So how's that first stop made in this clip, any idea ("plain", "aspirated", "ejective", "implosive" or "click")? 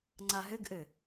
click